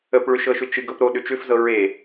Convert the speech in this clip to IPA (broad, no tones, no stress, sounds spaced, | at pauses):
ə p ɭ ʏ ʃ ɤ ʃ ʏ t͡ʃ ɨ ɡ ɤ p ɾ o ɗ ʏ t͡ʃ ʏ f z ɤ ɹ e